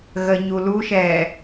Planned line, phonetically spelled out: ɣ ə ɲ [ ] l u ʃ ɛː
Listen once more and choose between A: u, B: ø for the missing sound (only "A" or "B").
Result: A